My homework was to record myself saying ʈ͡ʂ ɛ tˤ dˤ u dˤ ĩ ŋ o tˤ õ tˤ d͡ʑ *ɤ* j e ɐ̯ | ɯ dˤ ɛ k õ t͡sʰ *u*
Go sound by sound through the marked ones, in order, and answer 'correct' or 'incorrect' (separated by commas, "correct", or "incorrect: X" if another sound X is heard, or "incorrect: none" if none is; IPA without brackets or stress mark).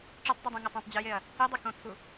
incorrect: ɯ, correct